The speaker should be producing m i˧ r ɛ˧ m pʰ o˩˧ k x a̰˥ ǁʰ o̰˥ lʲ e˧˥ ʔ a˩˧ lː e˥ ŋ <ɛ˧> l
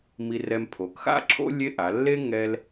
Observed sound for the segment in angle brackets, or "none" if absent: ɛ˧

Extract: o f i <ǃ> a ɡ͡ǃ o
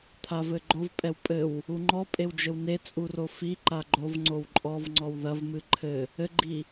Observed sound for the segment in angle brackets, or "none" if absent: ǃ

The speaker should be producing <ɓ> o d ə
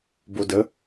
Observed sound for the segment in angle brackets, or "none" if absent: b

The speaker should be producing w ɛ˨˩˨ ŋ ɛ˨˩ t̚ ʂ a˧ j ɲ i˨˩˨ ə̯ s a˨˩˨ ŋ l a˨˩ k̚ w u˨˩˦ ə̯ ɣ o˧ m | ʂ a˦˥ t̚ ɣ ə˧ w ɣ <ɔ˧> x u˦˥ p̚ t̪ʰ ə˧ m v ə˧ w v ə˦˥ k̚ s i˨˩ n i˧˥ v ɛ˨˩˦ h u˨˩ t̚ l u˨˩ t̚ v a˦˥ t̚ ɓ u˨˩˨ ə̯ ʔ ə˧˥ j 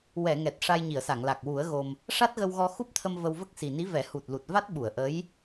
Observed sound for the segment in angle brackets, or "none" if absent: ɔ˧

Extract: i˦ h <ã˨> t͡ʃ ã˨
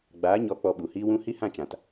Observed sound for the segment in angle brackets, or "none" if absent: ã˦˨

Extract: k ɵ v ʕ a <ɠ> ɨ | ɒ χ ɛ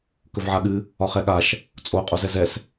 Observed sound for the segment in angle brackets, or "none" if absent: ɠ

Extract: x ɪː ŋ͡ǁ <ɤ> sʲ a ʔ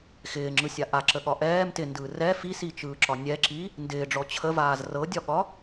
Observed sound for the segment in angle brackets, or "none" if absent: ɯ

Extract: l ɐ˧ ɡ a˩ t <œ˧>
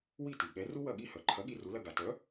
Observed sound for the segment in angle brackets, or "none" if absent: œ˩˥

